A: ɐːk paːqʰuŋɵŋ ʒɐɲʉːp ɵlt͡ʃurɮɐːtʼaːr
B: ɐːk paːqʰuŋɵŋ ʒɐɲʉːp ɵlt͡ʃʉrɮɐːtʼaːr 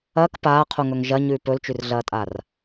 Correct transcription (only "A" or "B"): B